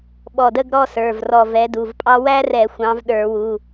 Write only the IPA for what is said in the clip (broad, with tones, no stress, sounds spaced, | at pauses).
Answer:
ɓ ɔ˧˩ d ə˥˧ ɡ ɾ ɔ˥˧ s ə˞˩˧˩ v r ɔ˧˩ v ɛ˨˥ d u˩˧˩ v pʼ ɑ˥ w æ˥ r ɛ˧˩˧ xʷ ɑ̃˨˥ v ɗ ə˞˧˩˧ w u˩˧˩